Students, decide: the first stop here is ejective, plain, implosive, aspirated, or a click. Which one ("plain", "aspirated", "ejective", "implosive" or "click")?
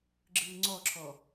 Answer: click